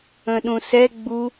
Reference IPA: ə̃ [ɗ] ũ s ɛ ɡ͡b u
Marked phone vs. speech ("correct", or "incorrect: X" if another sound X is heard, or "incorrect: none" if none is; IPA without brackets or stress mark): correct